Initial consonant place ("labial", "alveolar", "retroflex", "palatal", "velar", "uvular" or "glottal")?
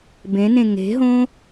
labial